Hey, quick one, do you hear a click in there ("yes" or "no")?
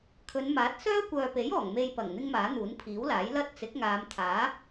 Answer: no